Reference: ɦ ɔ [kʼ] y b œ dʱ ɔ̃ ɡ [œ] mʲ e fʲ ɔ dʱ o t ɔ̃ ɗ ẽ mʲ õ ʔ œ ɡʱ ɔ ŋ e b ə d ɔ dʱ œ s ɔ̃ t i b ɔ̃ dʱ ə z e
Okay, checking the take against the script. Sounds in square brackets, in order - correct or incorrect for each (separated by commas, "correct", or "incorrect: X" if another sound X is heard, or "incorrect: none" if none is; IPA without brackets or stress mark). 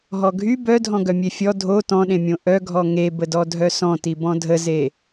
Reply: incorrect: ɡʱ, correct